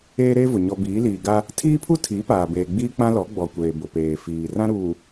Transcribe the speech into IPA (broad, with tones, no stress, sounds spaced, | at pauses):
eː˦ ɾ eː˦ v ʊ˨ ɲ ɔ˨ b iː˨˦ l iː˨ ɡ a˦ | tʰ iː˦ pʰ u˦ tʰ iː˨˦ p aː˨ b eː˨ ɡ͡b iː˦ k͡p ã˦ l ɔ˨˦ ɡ͡b ɔ˨ kʷ eː˨ b ʊ˨ p eː˨ f iː˨ r ã˦ ɾ uː˨